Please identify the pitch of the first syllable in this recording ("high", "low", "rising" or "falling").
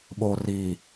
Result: low